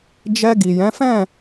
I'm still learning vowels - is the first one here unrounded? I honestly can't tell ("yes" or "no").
yes